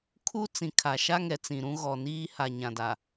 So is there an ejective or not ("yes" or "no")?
no